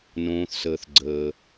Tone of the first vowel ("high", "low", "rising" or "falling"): low